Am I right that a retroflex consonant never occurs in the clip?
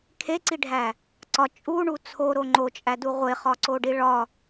no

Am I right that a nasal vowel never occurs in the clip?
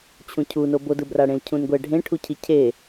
no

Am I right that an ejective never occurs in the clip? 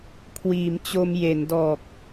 yes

